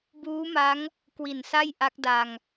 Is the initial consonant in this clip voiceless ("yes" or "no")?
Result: no